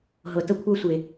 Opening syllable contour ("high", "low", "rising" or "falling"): low